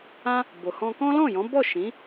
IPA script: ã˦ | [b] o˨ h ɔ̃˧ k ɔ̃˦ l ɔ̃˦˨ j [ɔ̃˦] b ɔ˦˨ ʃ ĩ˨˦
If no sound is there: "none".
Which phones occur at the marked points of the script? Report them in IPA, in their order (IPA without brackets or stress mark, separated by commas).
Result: b, ɔ̃˨˦